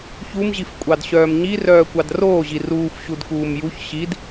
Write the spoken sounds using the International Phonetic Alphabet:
çumʑifkʷʼɑdɕœːm ɲirœːkʷɑd roːʑi ruːfɕudkuːm juç ɕid

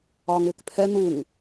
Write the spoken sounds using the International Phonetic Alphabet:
ɒːŋɪːkpʰɛ n̪uŋ

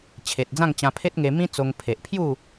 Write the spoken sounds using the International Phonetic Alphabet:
t͡ɕʰe˨t̚d͡zã˥˧ŋt͡ɕã˧ pʰe˦t̚ŋe˧mĩ˦t͡so˧ŋ pʰe˨ʔpʰju˥˧

